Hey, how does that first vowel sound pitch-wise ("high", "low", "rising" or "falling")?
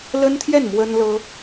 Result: high